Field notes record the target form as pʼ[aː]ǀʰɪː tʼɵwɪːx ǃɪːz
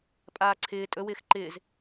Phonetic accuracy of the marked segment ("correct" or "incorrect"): correct